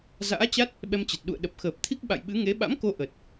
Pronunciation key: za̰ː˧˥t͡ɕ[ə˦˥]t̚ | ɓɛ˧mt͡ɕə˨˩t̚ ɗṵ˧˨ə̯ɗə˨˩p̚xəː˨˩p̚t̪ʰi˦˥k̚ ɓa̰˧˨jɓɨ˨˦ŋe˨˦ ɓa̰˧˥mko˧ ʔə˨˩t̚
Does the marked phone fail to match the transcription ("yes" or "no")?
yes